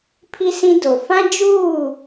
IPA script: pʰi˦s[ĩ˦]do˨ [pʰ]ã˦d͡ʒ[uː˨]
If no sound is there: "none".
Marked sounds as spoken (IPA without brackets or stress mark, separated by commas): ĩ˦, f, uː˦˨